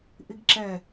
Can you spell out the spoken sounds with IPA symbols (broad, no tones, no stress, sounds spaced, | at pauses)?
ʔ i ɡ ǁ ɛ